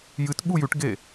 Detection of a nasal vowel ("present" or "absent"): absent